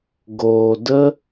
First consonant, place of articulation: velar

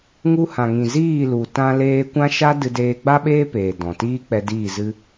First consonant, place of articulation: velar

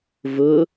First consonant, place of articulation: labial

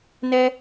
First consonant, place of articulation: alveolar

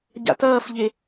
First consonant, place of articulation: palatal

